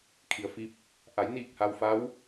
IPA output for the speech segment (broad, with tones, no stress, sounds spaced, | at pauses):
kʰ i˩ ə̯ f i˧˥ p̚ | ʔ a˩˧ j n iː˥˨ k̚ h a˧ w f a˧˥ w